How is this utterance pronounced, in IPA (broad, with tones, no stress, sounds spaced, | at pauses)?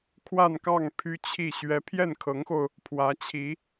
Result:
kʰ w a˥˧ n k ɑ˥˩ ŋ pʰ y˥ t͡ɕʰ i˥˩ ɕ ɥ ɛ˧˥ pʰ j ɛ˥˩ n kʰ ɤ˧˥ ŋ x o˧ ʊ̯ | pʰ w ä˧˥ t͡ɕʰ i˧˥